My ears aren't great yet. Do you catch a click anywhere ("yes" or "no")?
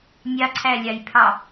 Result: yes